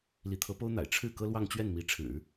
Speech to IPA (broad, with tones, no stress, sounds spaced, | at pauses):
l i˧˥ t̪ʰ ɤ˧˥ p o˥ ʊ̯ n̪ a̰˨˩ ɪ̯ ʈ͡ʂʰ ɻ̩˥˩ k ɤ˥ l w ɑ˥˧ ŋ t͡ɕ ɥ ɛ˥˩ n m i˧˥ ʈ͡ʂʰ ɻ̩˨˩˦